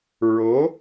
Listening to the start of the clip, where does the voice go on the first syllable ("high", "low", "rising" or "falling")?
rising